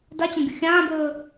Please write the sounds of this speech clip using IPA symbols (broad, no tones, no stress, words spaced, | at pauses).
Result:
dat͡ɕɐ̃ɡʲu xʲãːbɵː